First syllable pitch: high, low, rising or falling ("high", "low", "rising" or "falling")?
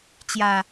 low